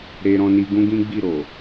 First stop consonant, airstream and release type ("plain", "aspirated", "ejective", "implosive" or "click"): plain